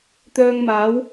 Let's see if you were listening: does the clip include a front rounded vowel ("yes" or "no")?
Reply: yes